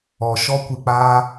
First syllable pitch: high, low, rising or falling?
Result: low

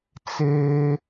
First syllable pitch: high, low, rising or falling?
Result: high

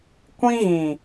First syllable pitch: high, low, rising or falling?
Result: high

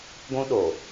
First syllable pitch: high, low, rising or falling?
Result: high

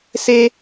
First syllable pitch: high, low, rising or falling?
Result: high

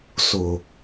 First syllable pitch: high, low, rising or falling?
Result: low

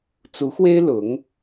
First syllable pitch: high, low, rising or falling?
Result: rising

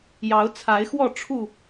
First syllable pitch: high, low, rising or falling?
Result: rising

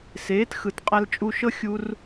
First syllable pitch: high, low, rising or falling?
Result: rising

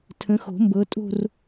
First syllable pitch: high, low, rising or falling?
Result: rising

